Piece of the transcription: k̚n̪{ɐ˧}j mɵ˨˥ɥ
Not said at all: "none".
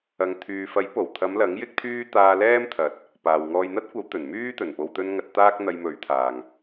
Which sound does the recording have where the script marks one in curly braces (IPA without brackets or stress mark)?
ɐ˧